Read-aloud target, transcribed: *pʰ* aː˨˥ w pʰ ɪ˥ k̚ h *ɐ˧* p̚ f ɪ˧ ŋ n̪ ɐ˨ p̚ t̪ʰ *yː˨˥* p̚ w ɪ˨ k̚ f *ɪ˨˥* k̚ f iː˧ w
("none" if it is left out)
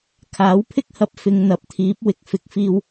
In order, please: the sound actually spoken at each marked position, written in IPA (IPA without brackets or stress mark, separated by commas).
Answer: kʰ, ɐ˧, iː˨˥, ɪ˨˥